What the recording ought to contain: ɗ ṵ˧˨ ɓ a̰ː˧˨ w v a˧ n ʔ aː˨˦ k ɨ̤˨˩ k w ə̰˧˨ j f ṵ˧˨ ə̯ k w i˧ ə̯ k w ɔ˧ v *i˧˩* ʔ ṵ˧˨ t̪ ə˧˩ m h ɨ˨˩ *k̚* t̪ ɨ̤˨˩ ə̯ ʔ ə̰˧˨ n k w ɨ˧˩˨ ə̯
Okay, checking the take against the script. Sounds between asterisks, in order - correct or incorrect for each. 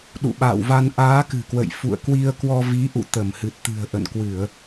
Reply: incorrect, incorrect

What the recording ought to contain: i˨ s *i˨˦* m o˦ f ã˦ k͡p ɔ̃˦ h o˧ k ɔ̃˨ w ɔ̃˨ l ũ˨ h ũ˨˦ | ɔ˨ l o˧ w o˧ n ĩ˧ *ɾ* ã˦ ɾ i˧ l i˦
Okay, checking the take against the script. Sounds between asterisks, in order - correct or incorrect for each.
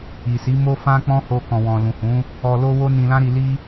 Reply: correct, incorrect

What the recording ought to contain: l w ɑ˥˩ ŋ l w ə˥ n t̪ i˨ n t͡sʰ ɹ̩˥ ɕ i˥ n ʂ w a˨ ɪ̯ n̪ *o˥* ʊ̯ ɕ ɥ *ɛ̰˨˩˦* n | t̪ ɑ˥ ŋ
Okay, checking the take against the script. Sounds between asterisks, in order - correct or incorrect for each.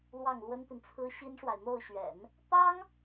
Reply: incorrect, correct

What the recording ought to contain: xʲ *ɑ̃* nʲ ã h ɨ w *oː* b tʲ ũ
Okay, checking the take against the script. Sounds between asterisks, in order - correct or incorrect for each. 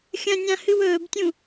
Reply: incorrect, incorrect

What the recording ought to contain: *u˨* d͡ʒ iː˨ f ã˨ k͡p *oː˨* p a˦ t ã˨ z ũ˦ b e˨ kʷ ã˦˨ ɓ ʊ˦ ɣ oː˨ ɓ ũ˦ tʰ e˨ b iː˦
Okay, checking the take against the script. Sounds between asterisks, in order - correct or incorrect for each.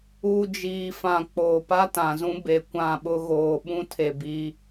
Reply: correct, correct

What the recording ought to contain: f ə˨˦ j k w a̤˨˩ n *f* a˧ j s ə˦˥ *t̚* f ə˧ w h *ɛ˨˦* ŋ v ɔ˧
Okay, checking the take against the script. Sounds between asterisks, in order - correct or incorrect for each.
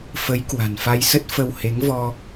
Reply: correct, correct, incorrect

